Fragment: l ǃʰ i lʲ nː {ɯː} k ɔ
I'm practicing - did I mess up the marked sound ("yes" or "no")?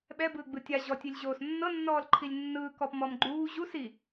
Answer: no